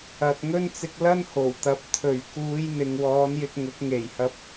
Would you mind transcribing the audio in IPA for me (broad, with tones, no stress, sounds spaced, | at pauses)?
ɐ˨ t̚ ŋ ɵ˥ n t͡s ɪ˧ k̚ l ɐ˥ n h o˨˩ w t̪ ɐ˨˥ p̚ t̪ʰ ɵ˨˩ ɥ k uː˨˧ j n̪ ɪ˨ ŋ w ɔː˨˧ n j ɪ˧ k̚ ŋ ʊ˨˥ k̚ ŋ e˨˩ j h ɐ˧ p̚